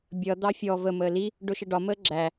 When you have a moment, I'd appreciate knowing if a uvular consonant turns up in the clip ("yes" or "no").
no